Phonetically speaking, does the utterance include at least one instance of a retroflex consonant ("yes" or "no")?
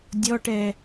yes